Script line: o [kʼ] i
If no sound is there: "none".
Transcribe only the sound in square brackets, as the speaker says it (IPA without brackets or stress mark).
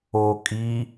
kʼ